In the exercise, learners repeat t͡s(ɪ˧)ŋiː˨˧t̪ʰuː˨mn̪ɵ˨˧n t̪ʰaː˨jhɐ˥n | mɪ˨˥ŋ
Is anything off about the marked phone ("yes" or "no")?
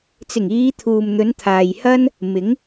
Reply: yes